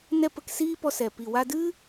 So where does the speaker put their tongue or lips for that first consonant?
tongue tip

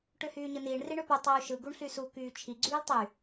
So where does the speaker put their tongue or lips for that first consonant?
retroflex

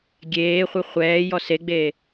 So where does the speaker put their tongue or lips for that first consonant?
velum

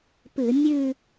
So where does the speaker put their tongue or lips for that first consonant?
lips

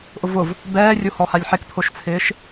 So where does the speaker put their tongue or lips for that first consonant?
throat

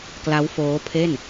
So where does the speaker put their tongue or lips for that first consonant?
velum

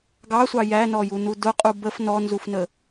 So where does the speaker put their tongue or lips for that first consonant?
velum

